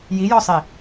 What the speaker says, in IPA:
j i j ɔ sˤ i

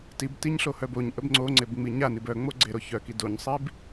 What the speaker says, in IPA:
t i b t i ɲ ɬ o h œ b o ɲ ʔ ə b ŋ͡ǀ o ŋ͡ǀ e b ŋ͡m i ɲ a n i b œ ŋ͡m o ɡ͡ǀ e ɾ o ç œ k i d o ɲ sˤ i b

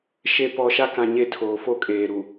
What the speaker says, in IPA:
ʃ e˨ p ɔ˨ ʃ a˦ k ã˨ ɲ e˦ tʰ oː˨ f o˦ kʼ eː˨ ɾ u˨

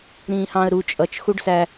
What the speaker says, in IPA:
ɾ ĩː h ɑ̃ ə̯ ɾ u t͡ʃʼ ʌ t͡ʃ x u ɖ s æ

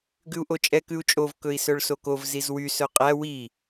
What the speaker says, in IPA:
ɡ ʉ u̯ ʔ o t͡ʃʼ ɛ k ʉ u̯ t͡ʃʼ o v k ɵ i̯ s œ ɭ s o k o v z i z w y s œ qʼ æ w i

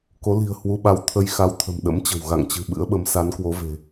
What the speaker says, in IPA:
k o˨˦ l i̤˨˩ ə̯ h w u˧ ɓ a˧ w t̪ʰ ə˧ j x a˧ w t̪ʰ ə̤˨˩ m ɗ ə̰˧˥ m t͡ɕ ə̤˨˩ w ɣ a̰˧˨ ŋ t͡ɕ ɨ̤˨˩ ɓ ɨ̰˧˥ ə̯ ɓ ə˨˦ m s a˨˦ n k w o˨˦ v e̤˨˩

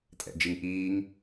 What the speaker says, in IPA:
tʼ ɛ̰ d͡ʒ i ŋ ʔ iː ŋ

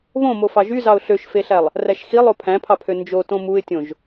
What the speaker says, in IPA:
β õ m o f ɑ ʒ y z ɑ ʊ̯ ɬ ø ʃ f e ɬ æ lˠ | r æ ʃ x i lˠ o pʰ æ̃ pʰ ɑ pʰ ø n d͡ʒ o t õ m u ɪ̯ tʲ õ ʒ

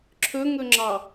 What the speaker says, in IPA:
ǁʰ ɵ ŋ ɵ ŋ͡ǁ ɑ

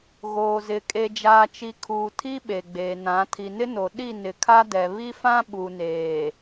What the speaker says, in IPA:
ɣ oː˨ z ɪ˨ kʼ e˨ d͡ʒ aː˨ t͡ʃ i˨ kʰ uː˨ tʰ i˦ ɓ e˨ ɡ͡b eː˨ n ã˨˦ tʰ i˨ n ɪ˦ n o˨ ɗ i˦˨ n ɪ˨ kʰ a˦ d ɛ˨ β i˦ f ã˦ ɓ u˨ n eː˨

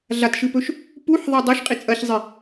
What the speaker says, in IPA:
ɮ a t ʃ ɨ p ɵ ʃ | p u ħ ðˤ a dˤ ɐ ʃ qʼ i t͡sʼ ɐ ç zˤ i

